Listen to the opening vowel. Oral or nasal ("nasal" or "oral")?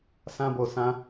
nasal